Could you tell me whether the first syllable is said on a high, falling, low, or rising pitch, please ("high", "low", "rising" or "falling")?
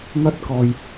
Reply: high